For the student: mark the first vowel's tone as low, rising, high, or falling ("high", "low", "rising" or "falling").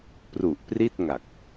low